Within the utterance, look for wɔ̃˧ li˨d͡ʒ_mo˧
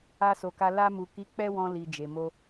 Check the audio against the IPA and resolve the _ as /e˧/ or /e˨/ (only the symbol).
e˨